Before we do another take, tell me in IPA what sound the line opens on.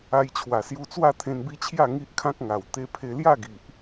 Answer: a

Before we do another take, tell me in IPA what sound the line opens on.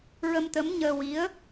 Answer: ɹ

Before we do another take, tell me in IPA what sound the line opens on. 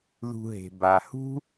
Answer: ð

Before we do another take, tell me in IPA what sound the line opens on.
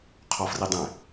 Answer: qʰ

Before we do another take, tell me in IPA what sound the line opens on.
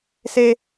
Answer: s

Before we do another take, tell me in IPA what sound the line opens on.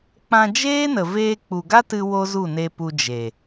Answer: k͡p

